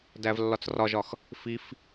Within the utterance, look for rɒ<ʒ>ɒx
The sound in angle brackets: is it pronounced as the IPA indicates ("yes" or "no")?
yes